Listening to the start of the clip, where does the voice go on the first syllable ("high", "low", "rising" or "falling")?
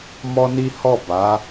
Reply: high